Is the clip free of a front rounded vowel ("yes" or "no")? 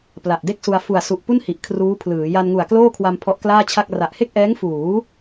yes